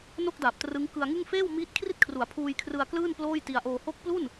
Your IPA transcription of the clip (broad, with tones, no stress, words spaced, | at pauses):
no˥˩k̚da˨˩p̚ trɯ˦˥ŋkɯ˧a̯ŋɯ˥˩ŋ feː˥˩wmiː˦˥t̚kʰri˥˩t̚kʰru˩˦a̯ pʰuː˧jkʰrɯ˧a̯ klɯː˥˩n ploː˥˩jti˧a̯ʔoː˧ ho˦˥k̚plu˥˩n